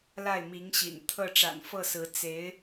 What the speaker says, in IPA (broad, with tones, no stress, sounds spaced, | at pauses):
l a˥˩ ɪ̯ m i˧˥ ŋ ɕ ḭ˨˩ n t̪ʰ ɤ˥˩ ʈ͡ʂ a̰˨˩ n f ɤ˥˩ s ɹ̩˧˥ t͡s e˧˥ ɪ̯